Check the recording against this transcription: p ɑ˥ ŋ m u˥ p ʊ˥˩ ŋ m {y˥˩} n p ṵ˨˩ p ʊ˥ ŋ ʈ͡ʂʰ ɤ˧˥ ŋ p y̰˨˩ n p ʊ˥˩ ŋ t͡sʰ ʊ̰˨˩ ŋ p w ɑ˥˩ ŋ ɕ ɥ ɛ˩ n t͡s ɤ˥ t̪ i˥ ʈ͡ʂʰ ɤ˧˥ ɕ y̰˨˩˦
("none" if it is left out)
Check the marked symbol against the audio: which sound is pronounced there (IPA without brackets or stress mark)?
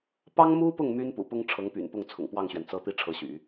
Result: y˥